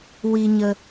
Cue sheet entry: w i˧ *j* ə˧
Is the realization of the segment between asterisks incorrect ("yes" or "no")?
yes